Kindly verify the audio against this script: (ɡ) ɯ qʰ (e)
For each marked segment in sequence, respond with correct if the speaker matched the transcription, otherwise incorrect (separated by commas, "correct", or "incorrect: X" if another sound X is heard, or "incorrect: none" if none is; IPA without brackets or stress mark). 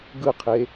correct, correct